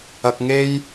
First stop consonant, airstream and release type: plain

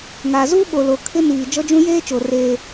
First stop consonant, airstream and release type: implosive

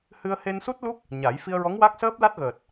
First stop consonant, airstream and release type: plain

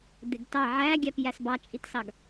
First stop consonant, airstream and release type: plain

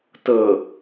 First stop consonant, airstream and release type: plain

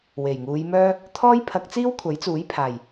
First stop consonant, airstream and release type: aspirated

